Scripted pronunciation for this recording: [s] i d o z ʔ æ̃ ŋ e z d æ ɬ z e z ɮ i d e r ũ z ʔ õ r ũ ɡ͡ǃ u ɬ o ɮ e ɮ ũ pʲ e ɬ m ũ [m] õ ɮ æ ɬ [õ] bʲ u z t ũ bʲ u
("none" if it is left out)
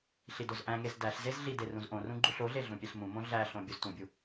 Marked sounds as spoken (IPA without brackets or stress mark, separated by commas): ɬ, m, õ